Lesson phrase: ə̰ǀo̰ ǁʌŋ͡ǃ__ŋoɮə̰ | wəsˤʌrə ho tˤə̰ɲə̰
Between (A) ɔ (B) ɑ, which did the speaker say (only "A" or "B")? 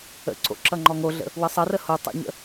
A